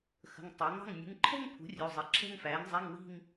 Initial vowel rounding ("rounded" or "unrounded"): unrounded